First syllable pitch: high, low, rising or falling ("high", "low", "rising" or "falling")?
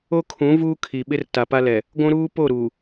high